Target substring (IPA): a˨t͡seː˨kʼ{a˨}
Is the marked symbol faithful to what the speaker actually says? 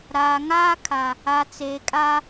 no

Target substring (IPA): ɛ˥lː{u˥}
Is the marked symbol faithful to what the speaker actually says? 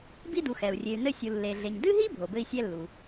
no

